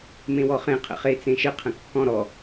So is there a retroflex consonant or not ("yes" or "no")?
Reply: no